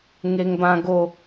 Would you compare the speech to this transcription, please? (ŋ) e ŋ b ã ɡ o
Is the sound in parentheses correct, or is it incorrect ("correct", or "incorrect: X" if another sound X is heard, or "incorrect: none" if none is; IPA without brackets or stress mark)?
correct